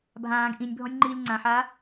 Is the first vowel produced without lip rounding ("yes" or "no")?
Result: yes